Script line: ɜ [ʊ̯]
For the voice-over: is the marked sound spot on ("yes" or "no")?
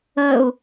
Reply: yes